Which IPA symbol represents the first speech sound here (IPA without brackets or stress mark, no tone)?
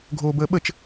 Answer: ɡʱ